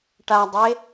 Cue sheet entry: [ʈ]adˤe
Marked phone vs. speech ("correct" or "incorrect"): correct